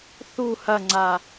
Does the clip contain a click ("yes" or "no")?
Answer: yes